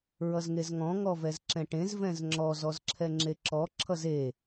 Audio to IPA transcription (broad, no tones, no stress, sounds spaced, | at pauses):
ɹ ʌ z ŋ e z ŋ ɔ̃ ŋ ɔ v ɛ z ǁ ɛ̃ ʈ ẽ z v ɛ̃ z ŋ͡ǁ ɔ z ɔ z ǁʰ ɛ ŋ͡ǁ e ǁ ɔ ǁʰ ʌ z e